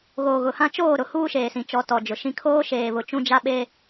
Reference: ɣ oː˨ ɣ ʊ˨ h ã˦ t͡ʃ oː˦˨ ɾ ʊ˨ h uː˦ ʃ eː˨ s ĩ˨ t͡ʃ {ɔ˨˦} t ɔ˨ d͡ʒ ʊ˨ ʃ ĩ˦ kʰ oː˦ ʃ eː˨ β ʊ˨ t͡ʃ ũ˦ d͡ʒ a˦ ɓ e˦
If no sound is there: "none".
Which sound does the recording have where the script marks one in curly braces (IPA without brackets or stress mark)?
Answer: ɔ˨˦